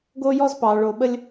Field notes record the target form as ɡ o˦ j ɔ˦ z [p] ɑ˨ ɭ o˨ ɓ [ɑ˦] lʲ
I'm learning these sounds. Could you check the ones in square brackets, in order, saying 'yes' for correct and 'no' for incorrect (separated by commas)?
yes, no